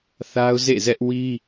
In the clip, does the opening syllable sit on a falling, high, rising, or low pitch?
high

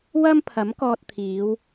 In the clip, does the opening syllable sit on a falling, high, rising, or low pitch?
high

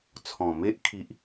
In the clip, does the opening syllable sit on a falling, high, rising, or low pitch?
low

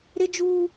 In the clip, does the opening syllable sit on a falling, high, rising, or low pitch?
high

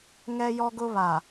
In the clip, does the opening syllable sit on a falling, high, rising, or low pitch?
high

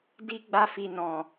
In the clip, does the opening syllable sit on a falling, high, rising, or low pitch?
high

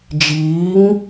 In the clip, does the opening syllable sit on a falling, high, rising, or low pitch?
rising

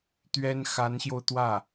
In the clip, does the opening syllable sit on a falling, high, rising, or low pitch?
high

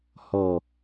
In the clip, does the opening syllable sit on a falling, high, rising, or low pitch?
low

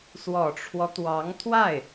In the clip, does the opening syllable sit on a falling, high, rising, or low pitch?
low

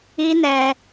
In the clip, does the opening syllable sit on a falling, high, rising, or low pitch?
high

